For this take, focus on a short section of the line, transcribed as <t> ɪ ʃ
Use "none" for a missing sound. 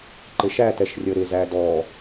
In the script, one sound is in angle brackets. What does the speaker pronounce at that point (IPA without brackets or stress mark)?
ǃ